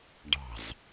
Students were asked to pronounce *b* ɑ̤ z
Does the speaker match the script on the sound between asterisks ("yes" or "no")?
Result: no